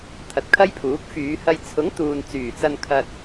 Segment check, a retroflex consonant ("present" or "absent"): absent